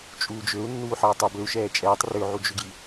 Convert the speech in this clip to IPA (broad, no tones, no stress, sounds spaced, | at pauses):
t͡ʃʼ uː d͡ʒ ø u̯ nː uː ħ ʌː tˤ ø b ø u̯ ʃ ɛː t͡ʃʼ ɛː tˤ r ø ʕ u d͡ʒ ʏ ɡ j i